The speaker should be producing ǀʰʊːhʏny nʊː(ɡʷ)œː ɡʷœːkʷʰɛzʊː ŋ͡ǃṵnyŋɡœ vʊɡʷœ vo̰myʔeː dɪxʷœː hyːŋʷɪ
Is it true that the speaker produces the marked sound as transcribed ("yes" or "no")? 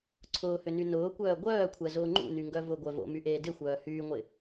no